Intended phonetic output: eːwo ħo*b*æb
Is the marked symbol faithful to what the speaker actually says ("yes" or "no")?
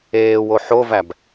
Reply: no